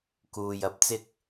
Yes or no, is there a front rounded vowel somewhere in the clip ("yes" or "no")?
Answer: no